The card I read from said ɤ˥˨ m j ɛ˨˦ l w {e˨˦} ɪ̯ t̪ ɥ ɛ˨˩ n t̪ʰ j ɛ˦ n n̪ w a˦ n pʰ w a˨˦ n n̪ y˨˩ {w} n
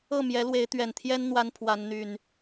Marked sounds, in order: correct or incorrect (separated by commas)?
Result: correct, incorrect